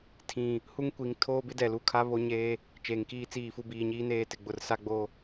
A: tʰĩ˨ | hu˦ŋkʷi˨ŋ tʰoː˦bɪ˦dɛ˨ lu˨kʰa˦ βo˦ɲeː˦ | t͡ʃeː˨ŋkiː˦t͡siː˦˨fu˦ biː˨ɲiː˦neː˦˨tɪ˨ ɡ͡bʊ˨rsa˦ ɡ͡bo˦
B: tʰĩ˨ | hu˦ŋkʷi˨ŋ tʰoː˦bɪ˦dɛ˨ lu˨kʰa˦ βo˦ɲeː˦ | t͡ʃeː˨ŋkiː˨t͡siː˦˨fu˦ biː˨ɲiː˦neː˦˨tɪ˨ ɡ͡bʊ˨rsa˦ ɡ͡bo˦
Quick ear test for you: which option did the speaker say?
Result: A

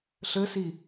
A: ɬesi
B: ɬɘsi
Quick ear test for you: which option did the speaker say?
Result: B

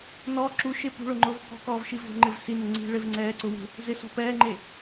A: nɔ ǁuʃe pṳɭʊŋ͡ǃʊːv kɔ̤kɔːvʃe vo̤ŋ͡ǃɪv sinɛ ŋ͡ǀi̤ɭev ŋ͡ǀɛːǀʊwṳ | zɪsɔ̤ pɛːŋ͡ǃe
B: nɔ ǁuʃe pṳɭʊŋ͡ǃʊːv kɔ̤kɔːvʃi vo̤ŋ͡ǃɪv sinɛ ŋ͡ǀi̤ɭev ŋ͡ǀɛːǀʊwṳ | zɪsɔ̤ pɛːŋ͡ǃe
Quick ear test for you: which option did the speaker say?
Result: B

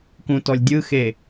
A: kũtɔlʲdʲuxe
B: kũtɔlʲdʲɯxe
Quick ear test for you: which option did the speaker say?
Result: B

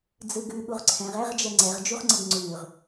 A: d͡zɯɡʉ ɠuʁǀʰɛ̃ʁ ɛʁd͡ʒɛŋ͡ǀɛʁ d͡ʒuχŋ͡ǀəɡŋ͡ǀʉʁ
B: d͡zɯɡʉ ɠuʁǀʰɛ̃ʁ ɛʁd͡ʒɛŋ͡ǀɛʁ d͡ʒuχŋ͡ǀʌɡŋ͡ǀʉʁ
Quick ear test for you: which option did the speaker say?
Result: A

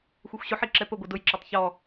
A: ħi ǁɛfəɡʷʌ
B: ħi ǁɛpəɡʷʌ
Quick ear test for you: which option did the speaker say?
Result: B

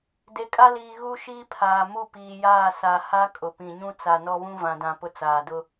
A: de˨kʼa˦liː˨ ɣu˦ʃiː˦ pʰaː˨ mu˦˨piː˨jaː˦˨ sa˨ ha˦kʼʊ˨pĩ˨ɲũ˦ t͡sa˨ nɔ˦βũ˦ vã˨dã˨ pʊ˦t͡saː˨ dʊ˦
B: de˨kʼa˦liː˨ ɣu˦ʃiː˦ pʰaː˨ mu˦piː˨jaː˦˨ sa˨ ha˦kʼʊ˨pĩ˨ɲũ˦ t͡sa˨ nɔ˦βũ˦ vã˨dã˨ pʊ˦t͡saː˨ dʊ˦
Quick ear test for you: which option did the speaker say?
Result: A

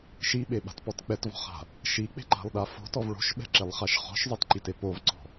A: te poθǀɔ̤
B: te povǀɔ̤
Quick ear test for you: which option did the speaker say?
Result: B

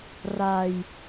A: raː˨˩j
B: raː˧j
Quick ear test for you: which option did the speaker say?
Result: B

